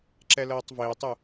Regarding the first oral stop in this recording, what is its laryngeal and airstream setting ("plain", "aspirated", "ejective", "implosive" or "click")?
click